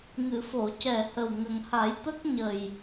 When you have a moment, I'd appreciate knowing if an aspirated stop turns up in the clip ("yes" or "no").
no